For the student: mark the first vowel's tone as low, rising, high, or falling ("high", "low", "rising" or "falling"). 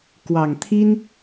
low